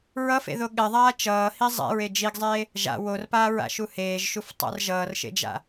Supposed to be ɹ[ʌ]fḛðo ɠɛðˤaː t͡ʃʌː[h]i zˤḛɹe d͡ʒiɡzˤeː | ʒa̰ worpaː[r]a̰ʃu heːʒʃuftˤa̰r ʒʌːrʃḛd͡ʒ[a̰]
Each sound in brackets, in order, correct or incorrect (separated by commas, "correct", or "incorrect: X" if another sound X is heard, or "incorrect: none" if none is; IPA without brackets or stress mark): correct, correct, incorrect: ɹ, correct